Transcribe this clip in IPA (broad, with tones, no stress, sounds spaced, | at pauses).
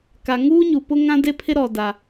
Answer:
k a˨ ŋ uː˦ ɲ u˨ p ʊ˦ ŋ ã˦ d e˦ pʰ ɪ˦ ɾ ɔ˨ d a˨